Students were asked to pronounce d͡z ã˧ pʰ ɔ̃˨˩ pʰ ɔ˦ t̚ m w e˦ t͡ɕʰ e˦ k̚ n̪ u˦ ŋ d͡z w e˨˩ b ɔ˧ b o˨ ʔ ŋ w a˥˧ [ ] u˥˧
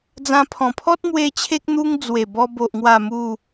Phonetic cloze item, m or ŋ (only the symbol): m